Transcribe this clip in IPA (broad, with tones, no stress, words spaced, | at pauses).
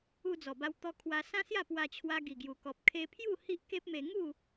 u˧d͡zɔ˨˩ba˧w t̪ɔ˧kʰwa˧sã˦sja˥˧ pwa˧t͡ɕʰwa˧ɡi˨˩ɡju˨˩ kɔ˨p̚kʰe˧pʰju˥˧ hi˦ʔke˦p̚me˧ ŋu˥˧